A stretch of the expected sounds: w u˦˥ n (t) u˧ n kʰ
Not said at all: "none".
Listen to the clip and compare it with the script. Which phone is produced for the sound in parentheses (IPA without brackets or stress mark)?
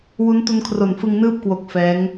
t